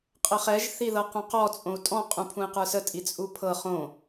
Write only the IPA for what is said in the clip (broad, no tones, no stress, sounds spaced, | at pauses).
qʼ ə χ ɛ ʒ θ i ð ɤ q ũ q ɔ t͡sʼ õ u̯ tʼ ɔ̃ qʼ ũ pʰ ũ i̯ q ə˞ s ə tʼ i t͡sʼ u pʰ ɤ χ õ